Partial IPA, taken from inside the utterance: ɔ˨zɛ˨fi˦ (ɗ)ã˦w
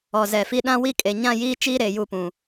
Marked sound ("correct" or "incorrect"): correct